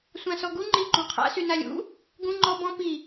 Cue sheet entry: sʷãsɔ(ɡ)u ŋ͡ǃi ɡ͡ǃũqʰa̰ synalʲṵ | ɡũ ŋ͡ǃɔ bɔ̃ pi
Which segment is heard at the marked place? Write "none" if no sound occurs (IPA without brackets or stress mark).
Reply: ɡ